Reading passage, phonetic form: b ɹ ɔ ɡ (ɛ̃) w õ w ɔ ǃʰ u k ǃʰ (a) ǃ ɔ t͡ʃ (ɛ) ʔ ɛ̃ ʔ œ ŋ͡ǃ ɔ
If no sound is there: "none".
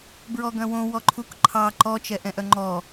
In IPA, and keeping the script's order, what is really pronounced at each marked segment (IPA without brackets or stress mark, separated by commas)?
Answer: œ̃, ɑ, ɛ